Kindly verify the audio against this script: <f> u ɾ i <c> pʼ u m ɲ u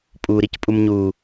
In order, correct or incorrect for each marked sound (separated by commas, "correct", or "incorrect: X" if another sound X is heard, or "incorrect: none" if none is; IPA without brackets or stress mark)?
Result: incorrect: pʼ, correct